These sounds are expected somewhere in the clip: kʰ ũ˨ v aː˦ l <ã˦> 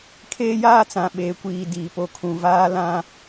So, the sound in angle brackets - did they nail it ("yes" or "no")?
yes